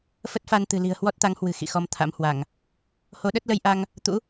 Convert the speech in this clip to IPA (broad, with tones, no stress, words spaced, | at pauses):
fə˦˥t̚fa˧nt̪ɨ̤˨˩li̤˨˩ə̯ hwɔ˦˥t̚t̪a˨˦ŋhwɨ̤˨˩ xḭ˧˨xɔ˧mt̪ʰa̰˧˥mhwa˧˩˨ŋ | ho˨˦ɗə˦˥t̚lə˧j ʔa˧ŋ | t̪ṵ˧˥